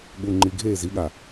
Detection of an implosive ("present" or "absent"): present